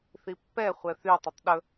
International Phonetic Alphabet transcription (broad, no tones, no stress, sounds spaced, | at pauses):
θ i pː ɛ χʷ ɛ θ y tˤ ɵ tˤ ɗ ɵ